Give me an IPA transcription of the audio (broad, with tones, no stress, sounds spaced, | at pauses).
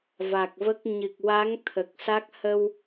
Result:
v a˨˩ k̚ v ə˦˥ k̚ ɲ ɨ˨˩ k̚ w a˧˥ ŋ t̪ʰ ə˨˩ k̚ s a˦˥ k̚ h ə˧ w